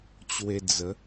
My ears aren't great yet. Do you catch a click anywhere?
no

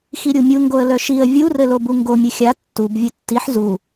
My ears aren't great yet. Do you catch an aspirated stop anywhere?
no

